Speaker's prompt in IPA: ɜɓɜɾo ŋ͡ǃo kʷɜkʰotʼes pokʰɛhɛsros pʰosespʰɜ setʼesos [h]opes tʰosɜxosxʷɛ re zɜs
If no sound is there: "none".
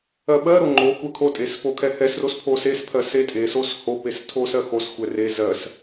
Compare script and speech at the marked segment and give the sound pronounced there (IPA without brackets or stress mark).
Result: h